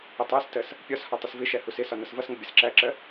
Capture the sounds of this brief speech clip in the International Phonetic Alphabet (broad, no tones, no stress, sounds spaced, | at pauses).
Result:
ə tˤ æ s t ɜ s | pʲ ɒ s h ɒ tˤ ə s v ɪ ʃ æ h u s ɪ s ɒ n ʌ s v ʌ s ŋ ə bʲ ʌ s ǁ æ ǁ ɜ